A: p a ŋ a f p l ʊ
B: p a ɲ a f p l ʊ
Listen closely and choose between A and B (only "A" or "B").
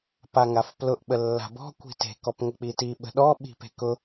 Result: A